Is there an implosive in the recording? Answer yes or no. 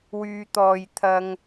no